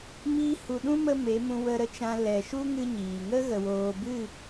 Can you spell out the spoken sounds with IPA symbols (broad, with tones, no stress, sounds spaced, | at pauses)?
m iː˦ h u˧ ɗ ũ˦ m ə˧ m e˨˦ m ũ˧ w ə˧ ɾ ə˧ t͡ʃ ã˧ l ɛ˨ ʃ u˦ ŋ ɨ˦ ɲ iː˨ ŋ ə˦ ɣ ə˨ w oː˨ b ɨ˦˨